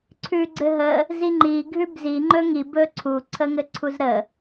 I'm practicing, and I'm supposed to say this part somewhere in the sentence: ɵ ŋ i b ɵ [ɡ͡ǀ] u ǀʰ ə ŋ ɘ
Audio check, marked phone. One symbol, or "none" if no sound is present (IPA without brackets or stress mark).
ǀʰ